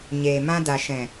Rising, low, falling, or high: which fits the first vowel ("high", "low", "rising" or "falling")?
low